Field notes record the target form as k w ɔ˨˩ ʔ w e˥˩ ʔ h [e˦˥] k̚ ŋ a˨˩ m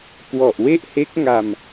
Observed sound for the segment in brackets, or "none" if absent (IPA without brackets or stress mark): e˦˥